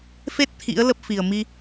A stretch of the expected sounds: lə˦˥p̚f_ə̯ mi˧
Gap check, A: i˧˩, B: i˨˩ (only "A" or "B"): B